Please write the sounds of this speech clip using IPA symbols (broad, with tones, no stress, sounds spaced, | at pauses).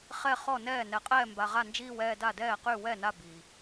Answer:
χ ɛ˧˩ χ ɔ˧˩ n ɛː˧˩ n ɛ˩ qʼ ɛː˧˩ m b a˩ ʁ a˧˩ n d͡ʒ iː˧˩ w ɛː˧˩ d a˧˩ d ɛː˧˩ q y˧˩ w ɛ˧˩ n a˧˩ b iː˩